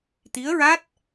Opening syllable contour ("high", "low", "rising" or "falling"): rising